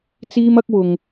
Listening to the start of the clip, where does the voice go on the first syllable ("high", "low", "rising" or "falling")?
high